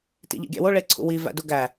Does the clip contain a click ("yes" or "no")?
yes